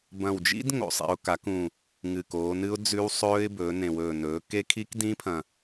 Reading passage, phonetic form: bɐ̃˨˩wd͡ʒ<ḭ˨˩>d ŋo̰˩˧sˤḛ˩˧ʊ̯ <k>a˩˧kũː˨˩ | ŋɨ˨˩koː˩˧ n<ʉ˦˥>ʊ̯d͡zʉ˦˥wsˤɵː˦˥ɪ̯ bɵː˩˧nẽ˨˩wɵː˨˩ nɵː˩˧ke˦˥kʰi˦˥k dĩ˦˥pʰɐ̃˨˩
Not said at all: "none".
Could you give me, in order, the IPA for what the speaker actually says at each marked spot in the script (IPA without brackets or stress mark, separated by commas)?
ḭ˦˥, k, ɨ˦˥